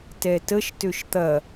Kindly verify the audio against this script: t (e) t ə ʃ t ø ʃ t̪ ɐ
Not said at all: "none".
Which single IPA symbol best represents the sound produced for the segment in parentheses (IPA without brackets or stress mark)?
ɛ